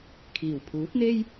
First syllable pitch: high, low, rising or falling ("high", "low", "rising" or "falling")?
low